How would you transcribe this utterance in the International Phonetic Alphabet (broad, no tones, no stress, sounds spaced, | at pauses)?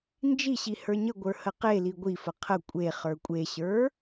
n d͡ʒ i ɕ i h ə˞ ɲ ə ɡʷ ə˞ h ə q e l i ɡʷ i f ə qʰ ə kʷʼ e χ ə˞ kʷʼ e ɕ ə˞